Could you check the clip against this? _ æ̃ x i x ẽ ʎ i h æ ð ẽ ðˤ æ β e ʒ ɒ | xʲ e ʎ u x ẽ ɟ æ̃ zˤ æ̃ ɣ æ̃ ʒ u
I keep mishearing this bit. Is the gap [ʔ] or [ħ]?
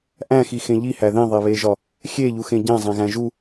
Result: ʔ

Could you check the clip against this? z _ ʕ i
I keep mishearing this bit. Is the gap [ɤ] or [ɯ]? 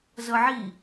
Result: ɤ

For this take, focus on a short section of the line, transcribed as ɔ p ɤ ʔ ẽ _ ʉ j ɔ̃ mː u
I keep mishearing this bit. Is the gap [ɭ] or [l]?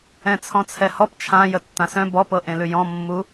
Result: l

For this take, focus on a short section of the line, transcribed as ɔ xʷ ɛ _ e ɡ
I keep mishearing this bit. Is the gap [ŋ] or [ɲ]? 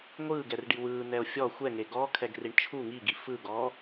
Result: ŋ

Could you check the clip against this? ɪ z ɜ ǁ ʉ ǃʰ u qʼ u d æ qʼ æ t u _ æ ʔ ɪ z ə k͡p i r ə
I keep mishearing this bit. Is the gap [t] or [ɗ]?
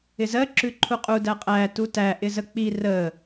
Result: t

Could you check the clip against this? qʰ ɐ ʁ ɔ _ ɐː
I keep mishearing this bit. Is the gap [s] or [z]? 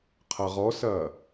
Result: s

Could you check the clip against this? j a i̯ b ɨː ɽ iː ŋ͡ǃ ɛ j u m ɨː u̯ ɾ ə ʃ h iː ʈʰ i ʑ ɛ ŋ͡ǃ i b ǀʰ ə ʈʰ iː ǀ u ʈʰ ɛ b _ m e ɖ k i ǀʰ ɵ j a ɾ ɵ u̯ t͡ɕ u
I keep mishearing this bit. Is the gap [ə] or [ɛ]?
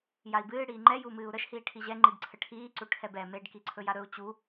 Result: ɛ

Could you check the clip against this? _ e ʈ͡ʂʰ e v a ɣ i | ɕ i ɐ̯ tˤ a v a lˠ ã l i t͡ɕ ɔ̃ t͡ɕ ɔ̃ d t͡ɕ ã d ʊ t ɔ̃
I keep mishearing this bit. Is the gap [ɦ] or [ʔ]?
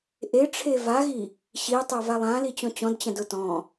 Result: ʔ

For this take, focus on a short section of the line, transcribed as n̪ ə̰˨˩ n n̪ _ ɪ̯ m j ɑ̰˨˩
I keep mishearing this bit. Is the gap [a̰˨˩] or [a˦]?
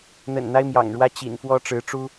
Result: a˦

